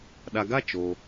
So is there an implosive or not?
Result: yes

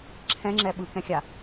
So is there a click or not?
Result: yes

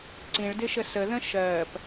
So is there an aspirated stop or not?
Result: no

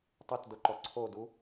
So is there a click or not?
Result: yes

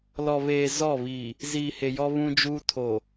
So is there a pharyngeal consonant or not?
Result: no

